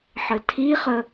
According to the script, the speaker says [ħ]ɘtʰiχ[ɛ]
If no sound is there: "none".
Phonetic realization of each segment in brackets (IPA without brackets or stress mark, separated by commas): ħ, ə